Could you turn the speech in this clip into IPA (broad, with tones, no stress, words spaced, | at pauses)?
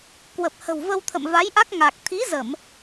kwə˨˩p̚hə̤˨˩wvə˧w t̪ʰə̰˧˨mva˨˦jʔa˦˥k̚ŋa˨˩k̚ t̪ʰi˨˦zə˧˩˨m